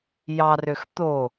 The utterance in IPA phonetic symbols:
j ɑ r ø x t̪ o

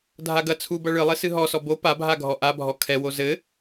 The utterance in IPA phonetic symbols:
dʱ a ɡ ɐ t͡sʰ u b ɐ ɭ ɨ lˠ e s ɨ ɦ ɔ s ɔ b o p a bʱ a ɡʱ ɔ ʔ a bʱ ɔ kʰ ɛ w o z ɘ

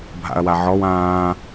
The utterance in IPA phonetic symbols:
bʱ a̰ ɐ̯ w a ʕ ɔ w ãː

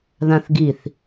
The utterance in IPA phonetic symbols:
ð ã θ ɡ i θ

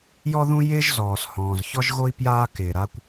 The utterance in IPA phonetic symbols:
j ɔ˥ ð ũ˥ j ɪː˥ ʒ z ɔː˩ s h ɔ̃ː˩ z ç ɔ˥ ʒ ɣ o˥ i̯ p j aː˥ k ɪː˩ ɾ a˥ kʷ

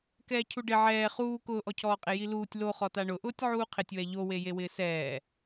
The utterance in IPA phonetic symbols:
k ɛː cʰ u ɖ ɪ ʕ ɛː χ uː k ʊː ʔ ɔ cʰ ɔː qʼ e j i l uː tʲ l o χ ɔ t a ɳ ʊ ʔ ʊː tʲ ʕ uː qʰ ɪ tʲ w ɛ ʎ o w e j e w ɪː s ɛː

